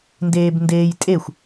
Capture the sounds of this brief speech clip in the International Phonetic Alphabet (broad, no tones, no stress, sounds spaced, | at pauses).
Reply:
n d eː b n d eː j tʼ e xʷ